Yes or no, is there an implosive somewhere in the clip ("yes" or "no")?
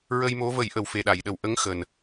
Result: yes